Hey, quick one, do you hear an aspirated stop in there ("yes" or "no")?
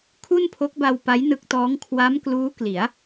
yes